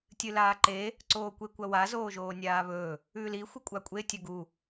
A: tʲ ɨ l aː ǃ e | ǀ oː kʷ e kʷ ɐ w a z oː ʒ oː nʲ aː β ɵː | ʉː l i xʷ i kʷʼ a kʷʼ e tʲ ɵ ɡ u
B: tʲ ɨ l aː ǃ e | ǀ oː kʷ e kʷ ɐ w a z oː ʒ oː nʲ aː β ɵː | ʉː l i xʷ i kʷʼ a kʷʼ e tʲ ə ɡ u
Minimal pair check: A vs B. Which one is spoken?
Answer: A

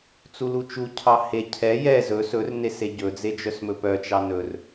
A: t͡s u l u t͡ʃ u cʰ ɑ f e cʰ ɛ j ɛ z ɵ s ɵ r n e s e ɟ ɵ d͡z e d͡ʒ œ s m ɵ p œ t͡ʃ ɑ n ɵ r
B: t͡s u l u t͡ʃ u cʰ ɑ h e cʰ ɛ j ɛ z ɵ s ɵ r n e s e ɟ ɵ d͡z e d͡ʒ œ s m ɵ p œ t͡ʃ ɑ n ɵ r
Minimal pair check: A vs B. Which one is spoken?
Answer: B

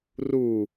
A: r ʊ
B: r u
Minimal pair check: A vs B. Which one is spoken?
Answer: B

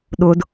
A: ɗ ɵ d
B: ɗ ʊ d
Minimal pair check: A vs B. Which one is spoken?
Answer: B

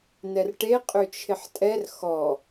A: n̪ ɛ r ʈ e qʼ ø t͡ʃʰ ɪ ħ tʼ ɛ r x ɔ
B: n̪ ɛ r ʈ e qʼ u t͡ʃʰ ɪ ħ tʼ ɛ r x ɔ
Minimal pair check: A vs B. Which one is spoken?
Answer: A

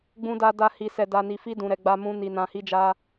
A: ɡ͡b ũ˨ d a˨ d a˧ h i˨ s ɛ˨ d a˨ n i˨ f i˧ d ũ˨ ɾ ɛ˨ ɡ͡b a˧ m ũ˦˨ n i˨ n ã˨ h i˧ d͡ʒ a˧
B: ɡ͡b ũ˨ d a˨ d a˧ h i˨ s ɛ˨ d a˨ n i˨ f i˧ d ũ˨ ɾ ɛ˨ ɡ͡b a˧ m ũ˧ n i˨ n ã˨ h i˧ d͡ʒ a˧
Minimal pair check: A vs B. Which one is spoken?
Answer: B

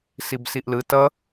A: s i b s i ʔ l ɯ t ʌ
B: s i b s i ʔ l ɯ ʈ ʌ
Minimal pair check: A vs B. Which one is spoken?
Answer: A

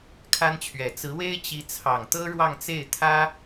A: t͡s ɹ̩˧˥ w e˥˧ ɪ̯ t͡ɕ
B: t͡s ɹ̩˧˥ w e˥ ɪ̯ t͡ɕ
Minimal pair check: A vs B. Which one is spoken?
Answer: B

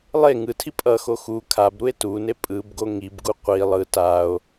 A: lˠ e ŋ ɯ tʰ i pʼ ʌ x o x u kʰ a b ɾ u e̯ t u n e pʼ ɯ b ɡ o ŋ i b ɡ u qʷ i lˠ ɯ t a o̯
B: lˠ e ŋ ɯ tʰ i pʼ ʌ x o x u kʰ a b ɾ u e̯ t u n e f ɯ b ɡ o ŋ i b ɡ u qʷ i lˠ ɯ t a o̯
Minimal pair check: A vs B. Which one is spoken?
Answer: A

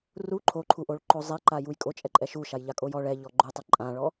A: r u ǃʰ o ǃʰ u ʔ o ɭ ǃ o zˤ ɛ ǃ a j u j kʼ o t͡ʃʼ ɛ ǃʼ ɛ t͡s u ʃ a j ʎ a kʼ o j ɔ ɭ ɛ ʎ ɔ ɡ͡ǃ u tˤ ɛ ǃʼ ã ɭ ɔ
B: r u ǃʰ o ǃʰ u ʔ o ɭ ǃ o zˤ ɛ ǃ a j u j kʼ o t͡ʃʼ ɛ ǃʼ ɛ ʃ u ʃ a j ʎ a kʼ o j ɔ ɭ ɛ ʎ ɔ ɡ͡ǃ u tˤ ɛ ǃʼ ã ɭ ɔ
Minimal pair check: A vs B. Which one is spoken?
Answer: B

